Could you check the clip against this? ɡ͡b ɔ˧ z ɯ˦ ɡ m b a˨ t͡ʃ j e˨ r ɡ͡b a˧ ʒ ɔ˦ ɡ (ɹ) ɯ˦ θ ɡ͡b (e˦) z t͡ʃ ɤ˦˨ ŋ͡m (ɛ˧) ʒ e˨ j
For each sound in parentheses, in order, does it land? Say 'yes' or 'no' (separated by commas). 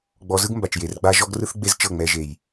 no, yes, yes